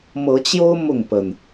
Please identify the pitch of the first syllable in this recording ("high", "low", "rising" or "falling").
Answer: rising